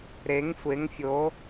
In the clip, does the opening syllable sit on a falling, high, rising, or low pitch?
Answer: rising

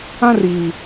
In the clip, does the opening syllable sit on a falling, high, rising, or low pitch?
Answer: high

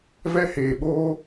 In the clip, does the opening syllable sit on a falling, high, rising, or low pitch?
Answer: high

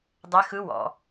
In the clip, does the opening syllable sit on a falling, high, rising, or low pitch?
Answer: rising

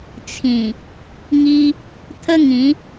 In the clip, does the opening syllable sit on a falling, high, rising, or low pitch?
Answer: low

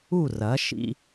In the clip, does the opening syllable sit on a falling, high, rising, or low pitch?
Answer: falling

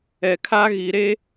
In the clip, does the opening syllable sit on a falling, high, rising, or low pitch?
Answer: low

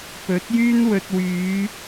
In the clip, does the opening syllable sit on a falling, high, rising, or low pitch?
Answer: rising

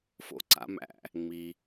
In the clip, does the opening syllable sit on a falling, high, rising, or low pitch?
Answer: rising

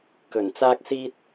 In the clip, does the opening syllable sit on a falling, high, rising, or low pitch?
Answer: low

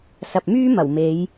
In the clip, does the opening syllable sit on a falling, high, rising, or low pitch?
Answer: low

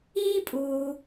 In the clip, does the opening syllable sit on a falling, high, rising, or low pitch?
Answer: high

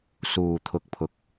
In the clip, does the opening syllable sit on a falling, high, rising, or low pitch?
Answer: low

